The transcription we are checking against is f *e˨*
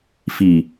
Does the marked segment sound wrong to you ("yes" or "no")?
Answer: yes